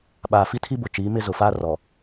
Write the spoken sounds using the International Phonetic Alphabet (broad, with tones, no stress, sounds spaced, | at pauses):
ɓ aː˨ f i˦ tʰ i˦ b ʊ˨ t͡ʃ iː˨˦ m ɪ˦ z ʊ˨ f aː˦ r ɔ˨